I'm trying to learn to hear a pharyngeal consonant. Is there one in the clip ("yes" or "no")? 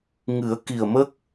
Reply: no